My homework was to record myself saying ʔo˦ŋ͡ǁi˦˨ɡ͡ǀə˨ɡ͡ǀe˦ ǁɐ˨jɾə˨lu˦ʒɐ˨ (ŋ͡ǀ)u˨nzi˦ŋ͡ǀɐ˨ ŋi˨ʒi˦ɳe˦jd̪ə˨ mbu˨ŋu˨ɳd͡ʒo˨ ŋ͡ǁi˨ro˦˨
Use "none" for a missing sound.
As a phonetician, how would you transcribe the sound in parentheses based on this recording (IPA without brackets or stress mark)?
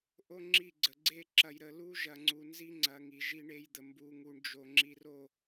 ŋ͡ǀ